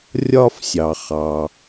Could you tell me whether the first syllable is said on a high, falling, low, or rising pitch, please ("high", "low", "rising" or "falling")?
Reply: high